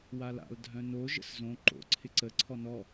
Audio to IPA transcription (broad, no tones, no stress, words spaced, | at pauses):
wala̰l dʱœ̃no ʒə̰szõ ǃo̰ ǀʰɪǀə ǀʰɔnɔ